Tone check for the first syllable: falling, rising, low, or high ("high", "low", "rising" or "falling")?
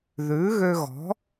rising